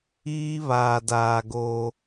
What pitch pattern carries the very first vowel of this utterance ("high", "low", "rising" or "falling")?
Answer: high